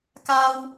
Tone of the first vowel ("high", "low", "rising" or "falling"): high